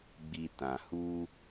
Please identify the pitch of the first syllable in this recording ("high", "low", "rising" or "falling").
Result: low